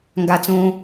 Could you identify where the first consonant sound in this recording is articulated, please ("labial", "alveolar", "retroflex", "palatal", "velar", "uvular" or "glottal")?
velar